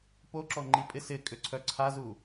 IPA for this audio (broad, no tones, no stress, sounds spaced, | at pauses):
p o ǁ ɔ ŋ͡ǃ i pʼ ɪ s ɪ kʼ ʏ ǀʰ œ ǀʰ a z u